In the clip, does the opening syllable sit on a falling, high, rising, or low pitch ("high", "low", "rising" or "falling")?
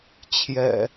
low